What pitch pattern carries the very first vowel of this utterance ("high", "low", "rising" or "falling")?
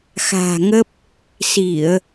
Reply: low